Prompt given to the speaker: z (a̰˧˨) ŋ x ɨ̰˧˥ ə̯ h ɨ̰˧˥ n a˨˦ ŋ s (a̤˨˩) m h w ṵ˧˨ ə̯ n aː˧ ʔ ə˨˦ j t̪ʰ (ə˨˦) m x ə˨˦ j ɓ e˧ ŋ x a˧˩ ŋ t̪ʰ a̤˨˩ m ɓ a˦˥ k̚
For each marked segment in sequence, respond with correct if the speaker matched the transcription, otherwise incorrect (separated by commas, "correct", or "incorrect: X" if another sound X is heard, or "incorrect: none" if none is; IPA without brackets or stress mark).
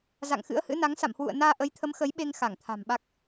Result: correct, incorrect: a̰˧˨, correct